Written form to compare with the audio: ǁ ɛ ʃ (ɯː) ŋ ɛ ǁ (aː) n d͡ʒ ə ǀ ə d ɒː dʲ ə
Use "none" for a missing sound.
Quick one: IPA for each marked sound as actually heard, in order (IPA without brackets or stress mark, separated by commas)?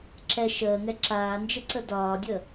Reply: əː, aː